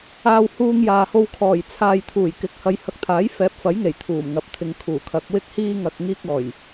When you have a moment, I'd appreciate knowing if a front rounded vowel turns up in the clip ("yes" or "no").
no